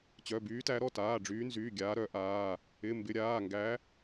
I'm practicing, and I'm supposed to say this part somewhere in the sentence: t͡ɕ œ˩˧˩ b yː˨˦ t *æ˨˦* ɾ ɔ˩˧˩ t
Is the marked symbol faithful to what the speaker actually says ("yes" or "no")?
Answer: yes